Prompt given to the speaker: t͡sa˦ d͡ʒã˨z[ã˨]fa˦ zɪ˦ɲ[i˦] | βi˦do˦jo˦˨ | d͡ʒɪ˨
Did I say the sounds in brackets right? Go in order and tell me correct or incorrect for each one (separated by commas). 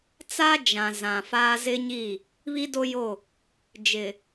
correct, incorrect